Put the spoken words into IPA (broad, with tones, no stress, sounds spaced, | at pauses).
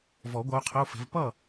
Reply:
v ɔ˨˩˦ ɡʷ ʌ˧˥ u̯ qʰ ə˧˥˧ u̯ f ɛ̤˧˥ v p ʌ˥˨